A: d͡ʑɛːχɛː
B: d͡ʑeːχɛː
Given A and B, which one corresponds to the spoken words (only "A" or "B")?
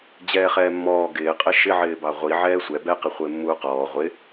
A